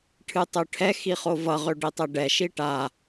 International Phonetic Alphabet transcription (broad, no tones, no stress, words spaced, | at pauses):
ʈʰɨtˤøʈʰɛ xiχovʌ ʁøɖitˤɛɖɛ ʃiʈa